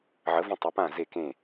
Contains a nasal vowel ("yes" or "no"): yes